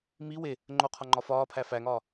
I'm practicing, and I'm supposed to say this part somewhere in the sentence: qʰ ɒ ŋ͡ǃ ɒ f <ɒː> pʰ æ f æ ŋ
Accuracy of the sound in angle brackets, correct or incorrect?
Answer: correct